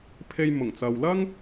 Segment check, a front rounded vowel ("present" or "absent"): absent